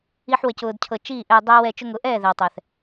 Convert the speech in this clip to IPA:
i˦ ħ w ə˧ c ʊː˧ d cʰ ɤ˧ t͡ʃ iː˦˨ ʔ ɛ˧ dˤ ɛː˦ w ɛ˧ t͡ʃ ʊ˧ ŋ ʊ˨˦ ʔ ɛː˦˨ ð ɛ˨ w tˤ ɛ˨ θ

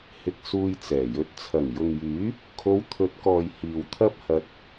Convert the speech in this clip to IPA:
h ɪ˨ k̚ s uː˧ j t͡s ɛː˨˩ j ɵ˨˥ t̚ t͡sʰ ɐ˨˩ ŋ j ʊ˨ ŋ j yː˨˥ | kʰ o˨˧ w t̪ʰ ɵ˨˥ t̚ k ɔː˨ j h iː˨ w t̪ʰ ɐ˥ p̚ h ɐ˧ t̚

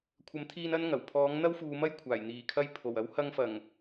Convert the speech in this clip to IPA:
kʷʰ ɐ˨˥ m t̪ʰ iː˧ n ɐ˥ n ŋ ɐ˨˩ w pʰ ɔː˨˥ ŋ n̪ ɐ˥ w f uː˨˧ m ɐ˥ j kʷʰ aː˨˩ j n̪ iː˨˩ kʰ ɐ˧ j pʰ o˨˩ w ɐ˨˥ w h ɐ˧ ŋ f ɐ˨˩ ŋ

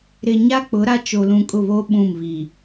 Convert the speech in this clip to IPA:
ɾ ɪ˨ ɲ a˦ k͡p ʊ˨˦ ɾ a˦ t͡ʃ o˨ l ũ˨ kʼ ʊ˦˨ β oː˦ ɓ ũ˦˨ m β i˨

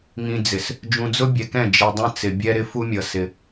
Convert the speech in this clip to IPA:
ŋ ĩ˨ d͡z ɪ˨ s | d͡ʒ ũ˨ d͡z ʊ˦ bʲ ɛ˨ k ɛ̃˦˨ d͡ʒ i˨ dˤ ɛ̃˦ t͡s ɪ˨ bʲ ɛ˦ ɾ ɪ˦ f u˦ mʲ ʌ˨ s ɪ˦

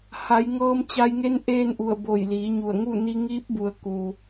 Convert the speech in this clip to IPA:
h a˩˧ j ŋ ɤː˧ m t͡ɕ a˧ j ŋ e˧˥ n ʔ eː˥˨ n ʔ u˧˩ ə̯ b o˧˩ j l iː˩˧ ɲ u˧˩ ə̯ ŋ u˥˨ n i˧ ŋ iː˧˥ p̚ b u˩˧ ə̯ k u˩

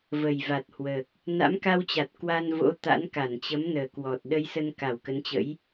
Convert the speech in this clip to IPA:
v ə˨˩ j v a˨˩ t̚ h w əː˨˩ k̚ | n a̰˧˥ m k a˧ w t͡ɕ a˨˩ t̚ k w a˧ n v o̰˧˥ t̪ a̰˧˥ n k a˧˩ n t͡ɕ ə˨˦ m n əː˨˩ k w ɔ˨˩ t̚ ɗ ə˧ j s ə˧ n k a˧˩ w k ə˨˦ n t͡ɕ ə̰˧˥ j

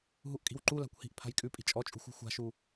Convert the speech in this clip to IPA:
ɦ u ʔ kʼ i̤ w ǃ u l a̤ kʷ h i̤ ʔ pʰ a̤ j kʼ ʉ pʼ i̤ t͡ʃʼ ɔ t͡ʃʼ ṳ xʷ ṳ xʷ a̤ ʃ u

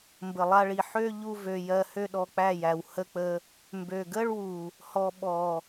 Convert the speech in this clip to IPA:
m b ə˨ lˠ a˧ ɭ i˨ ħ ø˦ ʎ u˦ v ø˧ j ɜ˧ h ø˦ ɗ ɔ˧ k͡p æ˦˨ j æ˨ w h ə˧ k͡p ə˧ | m b ø˨ ɡ ə˦ ɭ w u˨ | h ɔ˧ ɓ ɔ˨

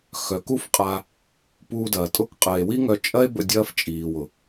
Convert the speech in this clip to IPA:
x œ˨˦ k u˦ f qʼ a˧ | p uː˧ d ɐː˨ tʼ ʊ˦˨ k qʼ ə˨ e̯ w i˦ ŋ œ˧ t͡ʃʼ ɐ˦ e̯ b ə̰˧ dʲ ɐː˦ f t͡ʃʼ iː˨ w ʊ˨

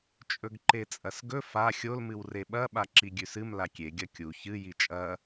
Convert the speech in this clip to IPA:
t͡ʃʼ ɵ ɡ ǃ e t͡sʼ ɐ s ɡ ɵ f a xʲ o l m ɨ w r e ɓ ɐ ɓ a ǁ i ɡʲ ʉ s ɨ m l a kʲ e ɡʲ ɐ kʲ u ç ɨ j i t͡ʃʼ ɐ

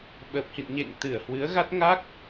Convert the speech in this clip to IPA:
ɓ əː˨˩ p̚ h ḭ˧˨ n ɲ ḛ˧˨ ŋ t̪ ɨ˧˩ ə̯ h w ɨ˨˦ ə̯ ɣ a˦˥ t̚ ŋ a˦˥ k̚

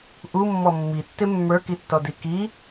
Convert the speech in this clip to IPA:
ʔ u mː ɔ mː i tː ɪ mː ə˞ k i tː ɔ d i k i

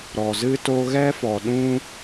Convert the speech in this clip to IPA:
ɾ ɔ˨ z ɨ˦ t o˦ ɣ ɛ˦ f ɔ˨ ɗ ũ˦

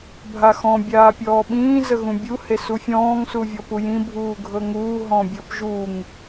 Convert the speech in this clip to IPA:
bʱ a x ɔ̃ bʲ aː pʲ ɔː ɓ ĩː z ə ɣ ũ bʲ u h e s u fʲ ɔ̃ː ŋ s u vʲ ɔ p u j ĩ bʱ uː ɡʱ ɤ ŋ uː ɦ ɔ̃ bʲ ɤ p ʒ u ŋ

